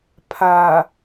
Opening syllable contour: low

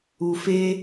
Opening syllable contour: low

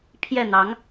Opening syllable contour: falling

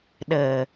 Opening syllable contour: low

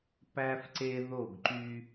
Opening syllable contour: high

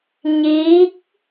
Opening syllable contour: rising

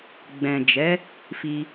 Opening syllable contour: low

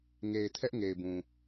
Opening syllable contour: low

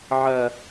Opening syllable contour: low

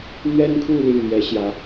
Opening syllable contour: high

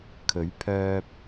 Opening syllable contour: rising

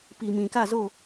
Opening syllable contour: low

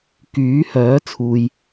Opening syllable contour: rising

